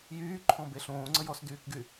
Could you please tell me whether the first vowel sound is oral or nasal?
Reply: oral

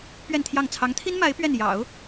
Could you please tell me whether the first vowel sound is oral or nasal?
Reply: oral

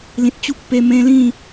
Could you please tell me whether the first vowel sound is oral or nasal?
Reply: nasal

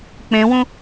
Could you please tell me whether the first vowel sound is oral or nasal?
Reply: nasal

